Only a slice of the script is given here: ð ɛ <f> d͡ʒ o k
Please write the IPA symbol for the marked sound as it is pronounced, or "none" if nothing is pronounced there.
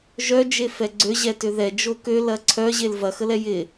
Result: none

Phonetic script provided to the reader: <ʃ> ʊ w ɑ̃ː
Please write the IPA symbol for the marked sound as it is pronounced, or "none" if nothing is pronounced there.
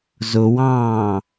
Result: z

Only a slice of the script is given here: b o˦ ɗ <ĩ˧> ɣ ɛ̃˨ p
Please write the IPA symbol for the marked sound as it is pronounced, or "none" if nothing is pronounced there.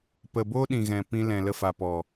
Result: ĩ˨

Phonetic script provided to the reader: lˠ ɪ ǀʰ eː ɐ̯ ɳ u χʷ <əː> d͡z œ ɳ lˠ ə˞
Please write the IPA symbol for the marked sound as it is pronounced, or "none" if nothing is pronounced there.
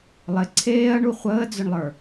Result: əː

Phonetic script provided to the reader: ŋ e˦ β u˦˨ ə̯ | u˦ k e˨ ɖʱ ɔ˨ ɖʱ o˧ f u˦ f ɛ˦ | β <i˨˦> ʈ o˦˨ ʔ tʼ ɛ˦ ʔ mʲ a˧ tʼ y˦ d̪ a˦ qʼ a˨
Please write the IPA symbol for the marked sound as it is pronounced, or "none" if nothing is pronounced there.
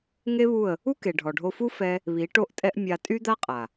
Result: i˨˦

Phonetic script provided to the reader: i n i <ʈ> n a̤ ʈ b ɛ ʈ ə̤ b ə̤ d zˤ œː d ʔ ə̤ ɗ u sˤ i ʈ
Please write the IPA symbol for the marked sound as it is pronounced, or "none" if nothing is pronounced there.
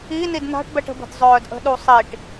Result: d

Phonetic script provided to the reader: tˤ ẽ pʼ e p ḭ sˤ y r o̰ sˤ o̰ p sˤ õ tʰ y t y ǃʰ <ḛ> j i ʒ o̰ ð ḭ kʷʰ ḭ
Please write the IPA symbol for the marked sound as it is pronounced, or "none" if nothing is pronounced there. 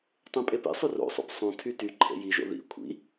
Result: ḛ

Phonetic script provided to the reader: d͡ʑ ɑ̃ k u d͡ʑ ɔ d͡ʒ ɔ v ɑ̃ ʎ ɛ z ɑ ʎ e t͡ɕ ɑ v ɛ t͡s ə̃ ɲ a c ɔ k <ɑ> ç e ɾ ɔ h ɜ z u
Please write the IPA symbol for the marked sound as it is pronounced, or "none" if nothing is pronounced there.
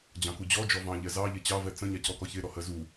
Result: ɔ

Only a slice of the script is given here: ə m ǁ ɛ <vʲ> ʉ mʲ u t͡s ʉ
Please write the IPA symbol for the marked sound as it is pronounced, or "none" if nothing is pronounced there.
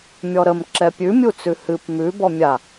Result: pʲ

